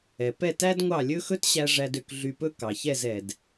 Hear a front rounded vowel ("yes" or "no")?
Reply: yes